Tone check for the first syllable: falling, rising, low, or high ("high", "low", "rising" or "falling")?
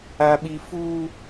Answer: high